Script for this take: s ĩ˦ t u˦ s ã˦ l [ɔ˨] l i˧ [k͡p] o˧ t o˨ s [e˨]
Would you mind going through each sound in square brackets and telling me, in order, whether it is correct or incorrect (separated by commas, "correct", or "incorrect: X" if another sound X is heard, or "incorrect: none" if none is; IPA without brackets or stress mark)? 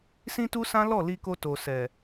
incorrect: ɔ˦˨, incorrect: k, incorrect: ɛ˨